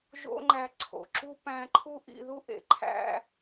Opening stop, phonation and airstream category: click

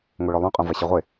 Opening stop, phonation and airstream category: ejective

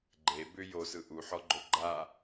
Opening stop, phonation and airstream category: click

